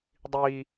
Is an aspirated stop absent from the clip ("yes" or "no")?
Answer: yes